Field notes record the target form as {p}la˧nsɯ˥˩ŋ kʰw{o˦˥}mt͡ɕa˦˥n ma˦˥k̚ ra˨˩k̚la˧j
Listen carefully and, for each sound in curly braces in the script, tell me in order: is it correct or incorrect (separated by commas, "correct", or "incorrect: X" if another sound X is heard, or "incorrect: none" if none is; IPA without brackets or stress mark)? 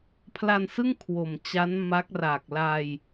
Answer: incorrect: pʰ, incorrect: o˨˩